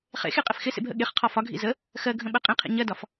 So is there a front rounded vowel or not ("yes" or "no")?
no